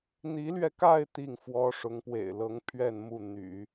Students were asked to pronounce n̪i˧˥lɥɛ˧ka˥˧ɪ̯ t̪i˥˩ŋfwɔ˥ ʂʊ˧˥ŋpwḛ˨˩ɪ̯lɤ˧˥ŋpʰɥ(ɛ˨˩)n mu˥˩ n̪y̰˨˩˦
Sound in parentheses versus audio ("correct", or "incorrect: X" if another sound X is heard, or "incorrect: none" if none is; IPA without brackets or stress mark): incorrect: ɛ˥˧